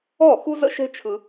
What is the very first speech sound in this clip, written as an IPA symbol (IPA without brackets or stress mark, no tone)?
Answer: ɔ